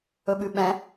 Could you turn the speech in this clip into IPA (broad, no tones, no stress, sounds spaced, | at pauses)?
ɵ ɓ ʉ ɓ ɛ̃